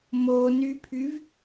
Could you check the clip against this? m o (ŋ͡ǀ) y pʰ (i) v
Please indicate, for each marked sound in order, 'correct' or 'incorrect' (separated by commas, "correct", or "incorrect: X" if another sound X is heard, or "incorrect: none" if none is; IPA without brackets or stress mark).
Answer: incorrect: n, incorrect: y